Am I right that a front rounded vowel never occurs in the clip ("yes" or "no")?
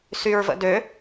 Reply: no